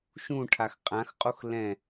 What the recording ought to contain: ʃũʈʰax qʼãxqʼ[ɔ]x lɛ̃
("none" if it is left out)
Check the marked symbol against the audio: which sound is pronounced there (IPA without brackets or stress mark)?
o